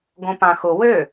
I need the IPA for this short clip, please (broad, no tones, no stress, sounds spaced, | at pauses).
ɡ õ p ã x ʊ w ø